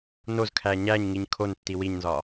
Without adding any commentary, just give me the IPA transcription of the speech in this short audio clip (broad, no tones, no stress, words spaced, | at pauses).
nozkʰæ ɲæɲŋiɲ kʰon tːiwiɲnzɒ